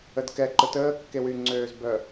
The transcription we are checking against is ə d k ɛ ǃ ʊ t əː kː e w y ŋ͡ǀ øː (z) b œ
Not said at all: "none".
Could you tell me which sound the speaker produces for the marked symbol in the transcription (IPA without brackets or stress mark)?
z